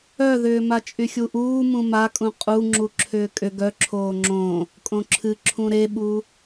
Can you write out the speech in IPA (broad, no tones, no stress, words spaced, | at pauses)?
œðʏː mat͡ʃʼyxʲuʔuː mũmakʼũ qʼuŋ͡ǁu ǁʰʏːkʼʏ ɡœ ǁʰoːŋ͡ǁõ | kʼõǁʰɨ ǁʰũɾeɓu